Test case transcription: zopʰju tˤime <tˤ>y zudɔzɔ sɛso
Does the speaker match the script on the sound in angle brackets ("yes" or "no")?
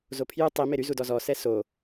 no